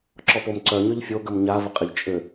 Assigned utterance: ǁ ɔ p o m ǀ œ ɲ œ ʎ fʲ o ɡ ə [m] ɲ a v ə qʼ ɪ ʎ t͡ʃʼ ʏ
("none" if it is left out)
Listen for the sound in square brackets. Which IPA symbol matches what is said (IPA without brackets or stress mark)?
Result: m